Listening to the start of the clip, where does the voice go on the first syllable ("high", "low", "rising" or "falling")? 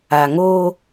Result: low